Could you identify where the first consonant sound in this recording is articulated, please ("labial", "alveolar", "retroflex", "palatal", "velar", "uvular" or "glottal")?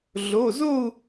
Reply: alveolar